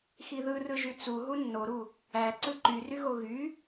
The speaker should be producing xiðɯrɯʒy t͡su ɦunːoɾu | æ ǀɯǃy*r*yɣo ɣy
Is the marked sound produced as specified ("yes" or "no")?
yes